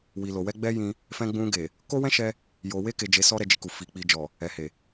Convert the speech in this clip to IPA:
w i˨ l o˨ w ɛ˧ ɡ͡b ɛ˧ j ĩ˧ | f ɛ̃˧ ɡ͡b ũ˧ ɡ e˨ | k o˦ w ɛ̃˦ ʃ ɛ˧ | j o˨ w e˧ k e˨ d͡ʒ e˨˦ s ɔ˦ ɾ ɛ˧ d͡ʒ i˧ k u˨ f i˨˦ k͡p i˧ d͡ʒ ɔ˨ | ɛ˨ h e˨

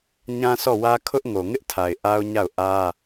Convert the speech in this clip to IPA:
ɲ ã˦ s ɔ˦˨ w ä˦ kʰ ʊ˦ ʔ ŋ o˨ ŋ ɪ˦ ʔ tʰ a˨ ɪ̯ ʔ a˦ ʊ̯ ɲ a˦˨ ʊ̯ ʔ ä˦

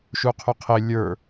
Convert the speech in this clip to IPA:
ʃ u qʰ ʊ qʰ ɪ lʲ ə˞

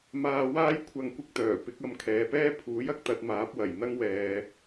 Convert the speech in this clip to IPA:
m aː˧ w aː˥ j kʷʰ ɐ˧ ŋ kʷ ɪ˥ k̚ t̪ œː˨˩ p ɪ˨˥ k̚ ɐ˧ m kʰ ɛː˨ p ɛː˥ pʰ uː˨˥ j ɐ˨ k̚ t̪ ɐ˧ t̚ m aː˨˥ p̚ w ɐ˨˩ j n̪ ɐ˥ ŋ w ɛː˨

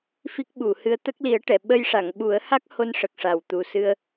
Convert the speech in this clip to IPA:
f i˦˥ k̚ ɓ u˨˩˨ h ɨ˧˥ ə̯ t̪ ə˦˥ k̚ l i˨˩˦ ə̯ ʈ ɛ˨˩˨ ɓ ə˧ j ʂ a˨˩˨ ŋ ɓ u˨˩˦ ə̯ h a˦˥ k̚ h o˧ n ʂ ə˨˩ k̚ ʂ a˨˩ w t̪ u˨˩ s ɨ˧ ə̯

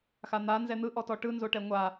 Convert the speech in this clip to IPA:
x a n̪ a n z ɛ n̪ ɯ ʔ ɔ t ɔ ʈ ɯ n z o ʈ ɛ ŋʷ a

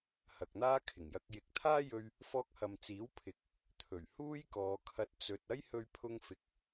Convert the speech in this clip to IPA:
h ɐ˨ k̚ n̪ aː˥ kʰ ɪ˨˩ ŋ j ɐ˧ k̚ j ɪ˨˥ k̚ t̪ʰ aː˥ j ɵ˧ ɥ | f ɔː˧ k̚ h ɐ˨ m t͡s iː˨˥ w pʰ ɪ˨ k̚ | t̪ʰ ɵ˨˩ ɥ h uː˥ j k ɔː˨˧ kʰ ɐ˧ t̚ t͡s ɵ˧ t̚ ɐ˥ j h ɵ˧ ɥ pʰ ʊ˧ ŋ f ɪ˨ k̚

